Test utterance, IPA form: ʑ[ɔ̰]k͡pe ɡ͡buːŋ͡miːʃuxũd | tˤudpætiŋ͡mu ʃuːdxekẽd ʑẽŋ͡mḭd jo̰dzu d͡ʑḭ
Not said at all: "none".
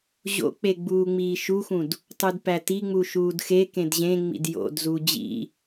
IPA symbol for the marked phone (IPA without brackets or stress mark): o̰